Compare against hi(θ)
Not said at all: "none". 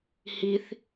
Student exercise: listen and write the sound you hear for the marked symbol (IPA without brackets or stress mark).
θ